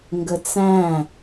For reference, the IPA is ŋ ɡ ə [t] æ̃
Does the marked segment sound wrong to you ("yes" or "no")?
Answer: yes